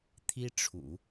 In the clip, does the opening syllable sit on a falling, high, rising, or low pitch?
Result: high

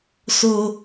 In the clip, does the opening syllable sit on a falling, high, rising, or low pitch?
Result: high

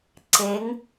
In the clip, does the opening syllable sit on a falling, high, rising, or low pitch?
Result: rising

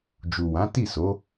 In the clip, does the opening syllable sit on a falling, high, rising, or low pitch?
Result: low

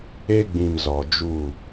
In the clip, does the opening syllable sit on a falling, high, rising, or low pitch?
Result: high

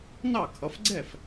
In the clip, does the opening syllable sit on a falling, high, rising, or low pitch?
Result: falling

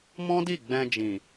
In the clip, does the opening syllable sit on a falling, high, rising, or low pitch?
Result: high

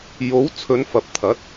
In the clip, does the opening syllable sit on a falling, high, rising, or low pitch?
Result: rising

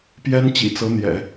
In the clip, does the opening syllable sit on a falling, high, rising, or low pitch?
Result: high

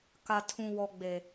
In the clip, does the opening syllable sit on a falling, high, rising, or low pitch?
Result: low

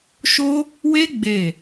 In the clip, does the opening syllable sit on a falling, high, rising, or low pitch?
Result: high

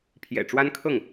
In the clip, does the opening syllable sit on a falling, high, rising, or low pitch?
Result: low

